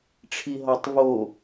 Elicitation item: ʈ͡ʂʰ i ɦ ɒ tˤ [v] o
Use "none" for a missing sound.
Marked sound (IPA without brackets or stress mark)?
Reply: v